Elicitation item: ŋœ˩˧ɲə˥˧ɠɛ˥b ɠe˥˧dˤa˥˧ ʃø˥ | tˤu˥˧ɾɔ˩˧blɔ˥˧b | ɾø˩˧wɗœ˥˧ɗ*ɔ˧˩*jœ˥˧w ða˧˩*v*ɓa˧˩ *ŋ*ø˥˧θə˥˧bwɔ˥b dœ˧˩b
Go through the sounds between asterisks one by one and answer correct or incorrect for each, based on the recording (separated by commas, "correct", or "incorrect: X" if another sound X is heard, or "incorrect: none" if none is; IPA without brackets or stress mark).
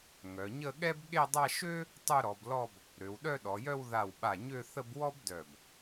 incorrect: ɔ˩˧, incorrect: w, incorrect: ɲ